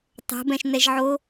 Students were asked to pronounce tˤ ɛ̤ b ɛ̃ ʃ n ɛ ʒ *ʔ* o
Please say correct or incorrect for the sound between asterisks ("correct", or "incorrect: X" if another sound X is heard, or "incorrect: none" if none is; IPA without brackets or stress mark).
incorrect: ʕ